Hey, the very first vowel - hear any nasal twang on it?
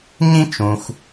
yes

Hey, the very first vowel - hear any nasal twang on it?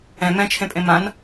yes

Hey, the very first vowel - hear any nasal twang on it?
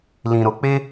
yes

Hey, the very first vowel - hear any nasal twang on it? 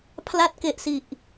no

